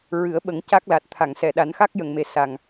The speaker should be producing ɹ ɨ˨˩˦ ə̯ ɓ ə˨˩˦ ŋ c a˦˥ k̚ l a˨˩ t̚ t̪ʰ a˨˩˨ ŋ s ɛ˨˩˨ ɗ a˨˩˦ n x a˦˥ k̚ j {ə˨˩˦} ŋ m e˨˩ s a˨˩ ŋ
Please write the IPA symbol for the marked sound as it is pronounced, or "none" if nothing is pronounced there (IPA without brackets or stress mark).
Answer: ə˨˩˨